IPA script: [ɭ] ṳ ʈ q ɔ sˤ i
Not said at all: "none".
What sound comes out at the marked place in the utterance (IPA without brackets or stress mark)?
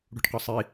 ɽ